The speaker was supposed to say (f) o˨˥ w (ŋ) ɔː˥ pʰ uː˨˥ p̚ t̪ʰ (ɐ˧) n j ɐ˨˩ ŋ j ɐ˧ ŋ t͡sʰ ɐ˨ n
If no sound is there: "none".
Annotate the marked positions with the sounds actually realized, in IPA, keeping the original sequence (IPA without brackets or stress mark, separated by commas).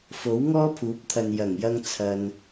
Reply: f, ŋ, ɐ˨